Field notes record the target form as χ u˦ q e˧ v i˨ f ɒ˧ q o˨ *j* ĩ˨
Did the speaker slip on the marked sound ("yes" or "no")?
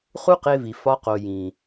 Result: no